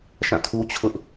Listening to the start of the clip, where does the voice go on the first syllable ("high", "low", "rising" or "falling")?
falling